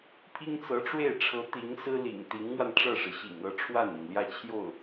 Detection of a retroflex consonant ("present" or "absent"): present